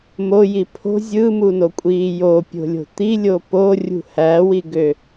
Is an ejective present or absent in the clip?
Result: present